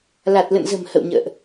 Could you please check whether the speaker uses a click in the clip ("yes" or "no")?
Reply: no